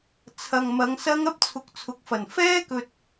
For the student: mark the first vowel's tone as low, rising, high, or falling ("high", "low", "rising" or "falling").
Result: low